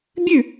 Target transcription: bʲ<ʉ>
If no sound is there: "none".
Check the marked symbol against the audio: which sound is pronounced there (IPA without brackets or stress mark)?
ʉ